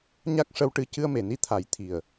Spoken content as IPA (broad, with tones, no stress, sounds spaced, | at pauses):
ɲ a˦˥ k̚ ʂ ə˧ w ʈ ɨ˧ c ɨ˧ ə̯ m e˨˩˨ n i˧˥ t̪ʰ a˨˩˦ j t̪ʰ i˨˩ ə̯